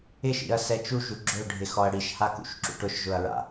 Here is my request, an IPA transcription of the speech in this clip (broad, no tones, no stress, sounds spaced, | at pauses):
ɪ ʃ ḭ ɐ̯ s ɛ t͡ʃ u ʒ u ɡ͡ǁ ʊ ɖʱ ɪ x ɔ ɐ̯ ɽ i ʃ h a k ṵ ʃ ǁ ṵ ʈ ʊ ʃ ʒ ʊ ɐ̯ ɹ a̰